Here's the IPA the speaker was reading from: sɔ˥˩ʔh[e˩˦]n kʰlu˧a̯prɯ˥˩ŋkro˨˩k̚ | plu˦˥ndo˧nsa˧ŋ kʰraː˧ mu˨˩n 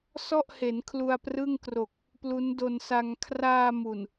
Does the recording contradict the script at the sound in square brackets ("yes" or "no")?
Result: no